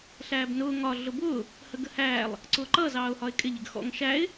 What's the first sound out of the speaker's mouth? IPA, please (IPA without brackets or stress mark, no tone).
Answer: ɬ